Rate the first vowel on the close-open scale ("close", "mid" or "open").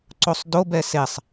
mid